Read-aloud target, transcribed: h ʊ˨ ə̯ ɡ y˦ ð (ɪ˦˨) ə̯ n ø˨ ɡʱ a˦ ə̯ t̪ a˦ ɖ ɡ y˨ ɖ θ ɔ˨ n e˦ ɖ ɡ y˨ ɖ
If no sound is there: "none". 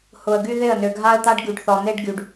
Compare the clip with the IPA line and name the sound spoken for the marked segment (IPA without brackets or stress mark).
ɪ˦˨